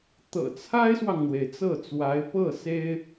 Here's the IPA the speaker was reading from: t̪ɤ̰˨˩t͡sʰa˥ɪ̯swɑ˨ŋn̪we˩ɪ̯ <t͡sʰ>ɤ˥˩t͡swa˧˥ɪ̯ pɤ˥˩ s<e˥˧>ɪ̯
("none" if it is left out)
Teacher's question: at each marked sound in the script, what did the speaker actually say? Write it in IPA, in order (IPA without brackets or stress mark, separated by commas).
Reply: t͡s, e˥